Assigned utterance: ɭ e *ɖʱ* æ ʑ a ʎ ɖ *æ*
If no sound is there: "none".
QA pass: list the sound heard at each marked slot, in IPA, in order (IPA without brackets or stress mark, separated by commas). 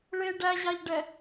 ɖ, ɛ